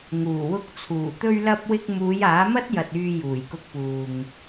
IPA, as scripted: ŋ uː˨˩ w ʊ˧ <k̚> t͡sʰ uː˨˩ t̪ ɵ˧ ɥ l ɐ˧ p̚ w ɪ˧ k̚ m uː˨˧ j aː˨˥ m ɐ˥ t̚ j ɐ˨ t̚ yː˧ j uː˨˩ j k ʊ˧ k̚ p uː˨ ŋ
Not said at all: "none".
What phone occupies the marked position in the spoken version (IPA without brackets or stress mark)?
k̚